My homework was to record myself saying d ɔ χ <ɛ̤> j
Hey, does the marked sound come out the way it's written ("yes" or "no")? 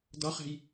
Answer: yes